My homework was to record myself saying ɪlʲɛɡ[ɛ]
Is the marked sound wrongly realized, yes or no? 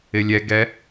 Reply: no